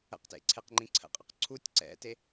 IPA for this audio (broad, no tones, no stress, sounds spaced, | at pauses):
ə̰ q t ḛ ǀʰ e q ŋ͡ǃ ĩ ǀʰ ə̰ qʼ ə q ǀʰ u tʲ ǀ ɛ̰ t e